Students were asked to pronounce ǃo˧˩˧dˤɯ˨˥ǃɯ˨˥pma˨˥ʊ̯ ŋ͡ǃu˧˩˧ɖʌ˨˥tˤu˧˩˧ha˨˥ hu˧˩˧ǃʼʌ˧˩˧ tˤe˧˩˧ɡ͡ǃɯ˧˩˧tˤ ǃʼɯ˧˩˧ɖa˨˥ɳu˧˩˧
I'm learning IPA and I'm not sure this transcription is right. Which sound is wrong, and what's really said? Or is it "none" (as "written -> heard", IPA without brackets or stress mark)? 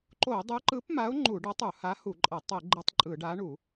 none